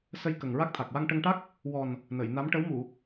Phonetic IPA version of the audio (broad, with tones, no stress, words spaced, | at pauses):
sə˧j kə˨˩ŋɹa˦˥k̚t̪ʰa˨˩k̚ wa˧ŋʈə˧ŋ ʈa˦˥k̚ | wɔ˨˩n | nə˨˩˨jna˧˥m ʈə˧˥wmu˨˩˨